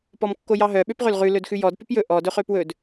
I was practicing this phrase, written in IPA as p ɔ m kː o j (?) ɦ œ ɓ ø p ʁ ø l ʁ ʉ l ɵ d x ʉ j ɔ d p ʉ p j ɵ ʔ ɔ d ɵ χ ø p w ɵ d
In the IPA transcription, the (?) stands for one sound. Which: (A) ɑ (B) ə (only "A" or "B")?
A